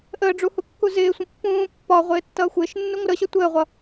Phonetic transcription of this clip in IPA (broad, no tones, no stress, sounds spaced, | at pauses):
ʔ əː ɖ͡ʐ u h u kː u z ɪː sʷ ə̃ pː ũː pː ɒ ʁʷ ɪː tː ʌː xʷ ɪː ʃ nː u ŋʷ ə ɾ ə ɕ ʌ tʷ əː ʁʷ ʌ